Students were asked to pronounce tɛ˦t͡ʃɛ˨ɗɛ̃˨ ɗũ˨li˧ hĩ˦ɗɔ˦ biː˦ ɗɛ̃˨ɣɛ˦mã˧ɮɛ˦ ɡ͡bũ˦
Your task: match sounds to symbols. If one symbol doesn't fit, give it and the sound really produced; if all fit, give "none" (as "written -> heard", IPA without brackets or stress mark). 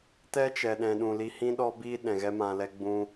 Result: ɮ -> l